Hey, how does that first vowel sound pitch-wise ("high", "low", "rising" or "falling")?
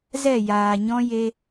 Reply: falling